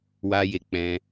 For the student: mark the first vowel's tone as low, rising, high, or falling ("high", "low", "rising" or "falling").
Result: high